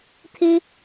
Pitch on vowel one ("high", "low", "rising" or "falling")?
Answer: high